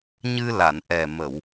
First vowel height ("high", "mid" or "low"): high